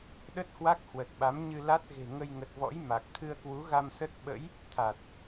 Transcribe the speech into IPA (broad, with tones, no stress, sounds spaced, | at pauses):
ɗ ə˦˥ t̚ h w a˦˥ k̚ h w ə˨˩ t̚ ɓ a˨˦ m ɲ ɨ˧ l a˦˥ t̚ ɣ e̤˨˩ ŋ ə˧ j ŋ ə˨˩ t̚ v ɔ̰˧˥ j m a˨˩ k̚ t̪ʰ ɨ˧ ə̯ k w u˨˦ ɣ a˧ m s ə˦˥ t̚ ɓ ə̰˧˥ j | t̪ʰ a˨˩ t̚